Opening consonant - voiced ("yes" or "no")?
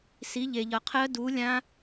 no